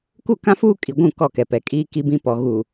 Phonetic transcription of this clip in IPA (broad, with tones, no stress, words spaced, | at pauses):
ku˦˨kã˦fuː˦ kʼi˨ɡʷũ˦˨ kɔ˦˨kɛ˨pɛ˨kʼiː˦ ki˦bĩ˦pɔ˨ ɣuː˨